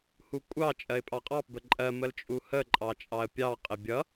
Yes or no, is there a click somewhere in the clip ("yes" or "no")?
yes